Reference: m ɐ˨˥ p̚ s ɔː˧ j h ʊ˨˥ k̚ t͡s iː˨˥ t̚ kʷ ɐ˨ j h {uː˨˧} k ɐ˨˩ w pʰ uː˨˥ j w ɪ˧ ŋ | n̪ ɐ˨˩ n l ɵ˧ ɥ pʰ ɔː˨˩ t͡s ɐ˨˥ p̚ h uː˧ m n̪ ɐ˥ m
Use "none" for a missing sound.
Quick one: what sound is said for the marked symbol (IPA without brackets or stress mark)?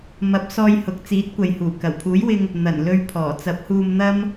uː˨˩